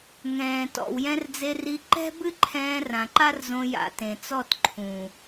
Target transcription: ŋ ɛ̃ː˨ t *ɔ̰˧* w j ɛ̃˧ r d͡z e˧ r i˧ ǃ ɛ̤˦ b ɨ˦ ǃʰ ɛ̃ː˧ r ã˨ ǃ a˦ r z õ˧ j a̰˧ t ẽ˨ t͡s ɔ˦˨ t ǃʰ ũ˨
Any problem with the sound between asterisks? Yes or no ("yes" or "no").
yes